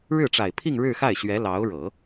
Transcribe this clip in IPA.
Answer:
ɻ ɻ̩˥˩ ʈ͡ʂ a˨˩ ɪ̯ pʰ i˥˧ ŋ ɻ ɻ̩˥˧ x a˥˩ ɪ̯ ɕ ɥ ɛ˧˥ l ɑ˧˥ ʊ̯ ɻ ɤ˨˩˦

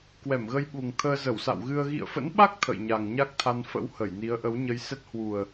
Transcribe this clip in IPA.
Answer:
k w ɛ˧˩ m ɣ ə˧ j ɓ u˨˩ ŋ t̪ʰ əː˧ z ə˧˩ w s a̰˧˨ w ɣ ɨ˧ ə̯ ɣ ḭ˧˨ ə̯ f ə̰˧˥ n ɓ a˦˥ k̚ t̪ʰ ə̰˧˨ j ɲ a˨˩ ŋ ɲ a˦˥ k̚ t̪ʰ a˧ n f ə̰˧˥ w h ə˧˩ j n i˨˦ ə̯ ʔ ə˨˦ w ɲ ə˧ j s ɛ˦˥ t̚ h w u˨˩ ə̯

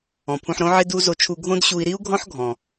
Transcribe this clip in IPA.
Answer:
ɔ̃˩ pʰ ũ˧ ħ ɾ õ˥ ʕ ɪ˥ d u˥ z o˧ t͡ʃʰ u˧ ɡʱ õ˥ d ɕ u˧ i̯ ɾ i˥ u̯ ɡʱ ɔ̃˥ ħ ɡʱ ɔ̃˩

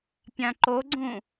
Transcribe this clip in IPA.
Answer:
pʲ ã ǃ o ɡ͡ǀ ũ

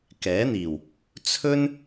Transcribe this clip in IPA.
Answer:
k ɛː˨˥ n̪ iː˨˩ w | t͡sʰ ɵ˥ n

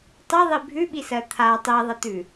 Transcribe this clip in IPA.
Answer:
tˤ ɨ ðˤ i bʱ ʉ ɓ i s ɜ t̪ʰ a tˤ i ðˤ ə t̪ ʉ

